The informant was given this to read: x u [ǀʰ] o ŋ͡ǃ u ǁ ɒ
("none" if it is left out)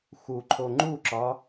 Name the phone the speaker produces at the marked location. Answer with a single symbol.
ǃʰ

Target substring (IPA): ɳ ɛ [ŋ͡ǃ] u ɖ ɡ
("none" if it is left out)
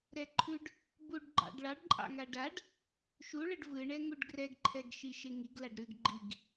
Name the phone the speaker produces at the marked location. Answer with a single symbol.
ŋ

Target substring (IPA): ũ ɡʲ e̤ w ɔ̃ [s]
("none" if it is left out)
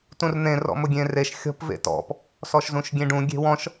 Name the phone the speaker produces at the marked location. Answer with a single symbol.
ʃ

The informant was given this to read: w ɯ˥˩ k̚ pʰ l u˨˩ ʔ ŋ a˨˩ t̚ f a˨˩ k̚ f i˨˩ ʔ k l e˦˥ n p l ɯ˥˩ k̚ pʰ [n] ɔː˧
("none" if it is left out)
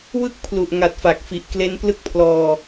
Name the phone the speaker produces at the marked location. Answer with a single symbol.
l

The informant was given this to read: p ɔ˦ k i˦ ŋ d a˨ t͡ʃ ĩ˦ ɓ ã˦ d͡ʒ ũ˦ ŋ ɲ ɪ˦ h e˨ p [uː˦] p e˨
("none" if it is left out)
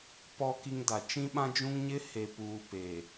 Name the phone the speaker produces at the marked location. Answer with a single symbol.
uː˨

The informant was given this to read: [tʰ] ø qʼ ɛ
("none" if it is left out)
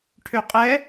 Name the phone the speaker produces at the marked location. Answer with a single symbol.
ʈʰ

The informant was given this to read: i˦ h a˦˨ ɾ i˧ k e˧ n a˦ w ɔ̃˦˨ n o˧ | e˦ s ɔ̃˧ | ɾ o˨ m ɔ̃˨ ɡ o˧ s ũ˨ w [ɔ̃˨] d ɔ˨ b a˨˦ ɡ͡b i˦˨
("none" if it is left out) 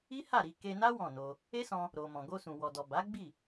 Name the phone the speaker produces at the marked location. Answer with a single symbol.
ɔ˨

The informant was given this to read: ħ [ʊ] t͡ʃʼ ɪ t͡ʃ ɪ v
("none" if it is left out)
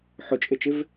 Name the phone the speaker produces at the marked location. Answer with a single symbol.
ʊ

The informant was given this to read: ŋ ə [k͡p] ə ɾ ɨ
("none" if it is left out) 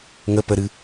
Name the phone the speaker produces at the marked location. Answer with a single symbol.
p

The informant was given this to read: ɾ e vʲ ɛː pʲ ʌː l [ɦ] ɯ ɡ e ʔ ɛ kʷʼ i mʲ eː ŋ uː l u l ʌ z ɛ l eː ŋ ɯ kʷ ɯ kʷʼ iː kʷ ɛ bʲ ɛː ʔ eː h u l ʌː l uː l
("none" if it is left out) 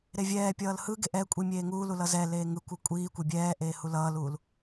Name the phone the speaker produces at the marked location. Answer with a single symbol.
h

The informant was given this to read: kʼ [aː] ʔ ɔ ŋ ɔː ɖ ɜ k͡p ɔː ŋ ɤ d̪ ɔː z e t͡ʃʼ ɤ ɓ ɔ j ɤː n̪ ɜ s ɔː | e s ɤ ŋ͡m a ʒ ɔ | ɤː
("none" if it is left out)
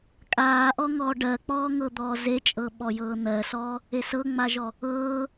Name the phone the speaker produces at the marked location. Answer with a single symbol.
aː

